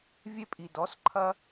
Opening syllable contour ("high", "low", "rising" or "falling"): high